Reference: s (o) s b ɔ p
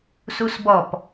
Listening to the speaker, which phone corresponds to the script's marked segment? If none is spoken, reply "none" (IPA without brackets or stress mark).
u